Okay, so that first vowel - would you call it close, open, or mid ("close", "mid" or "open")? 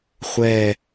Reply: mid